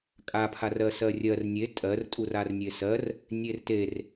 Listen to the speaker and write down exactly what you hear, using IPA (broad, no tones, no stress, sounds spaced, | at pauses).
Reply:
kʼ a pʰ a r ɜ s ɜ rʲ ɜ r nʲ e tʼ ɜ r tʼ u r a r nʲ e s ɜ r | nʲ e r t e r